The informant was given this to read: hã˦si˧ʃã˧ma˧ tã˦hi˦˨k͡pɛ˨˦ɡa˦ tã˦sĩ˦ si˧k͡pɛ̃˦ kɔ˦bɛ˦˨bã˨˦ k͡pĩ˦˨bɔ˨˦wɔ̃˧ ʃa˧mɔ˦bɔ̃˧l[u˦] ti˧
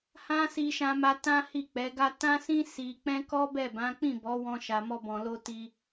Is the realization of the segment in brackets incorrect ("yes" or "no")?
yes